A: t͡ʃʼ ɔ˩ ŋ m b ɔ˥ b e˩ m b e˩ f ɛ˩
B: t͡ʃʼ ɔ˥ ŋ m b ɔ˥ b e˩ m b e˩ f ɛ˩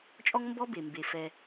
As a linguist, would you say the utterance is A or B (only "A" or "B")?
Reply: B